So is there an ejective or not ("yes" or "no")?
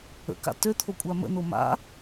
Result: yes